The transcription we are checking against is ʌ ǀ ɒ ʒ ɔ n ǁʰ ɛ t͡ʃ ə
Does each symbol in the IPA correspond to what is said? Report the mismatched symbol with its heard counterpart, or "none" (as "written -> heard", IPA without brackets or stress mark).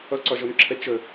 none